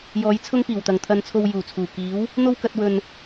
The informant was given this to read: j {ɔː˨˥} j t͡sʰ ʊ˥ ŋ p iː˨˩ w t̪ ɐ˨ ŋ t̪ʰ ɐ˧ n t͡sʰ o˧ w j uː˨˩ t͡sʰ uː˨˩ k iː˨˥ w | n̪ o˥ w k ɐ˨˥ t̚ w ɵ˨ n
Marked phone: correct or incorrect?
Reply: correct